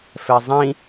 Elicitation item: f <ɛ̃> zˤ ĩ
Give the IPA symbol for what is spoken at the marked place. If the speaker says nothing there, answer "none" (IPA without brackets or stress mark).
ɛ